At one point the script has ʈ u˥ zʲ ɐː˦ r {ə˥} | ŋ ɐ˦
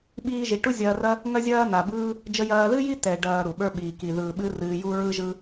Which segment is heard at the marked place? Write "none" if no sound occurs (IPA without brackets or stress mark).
ɐ˥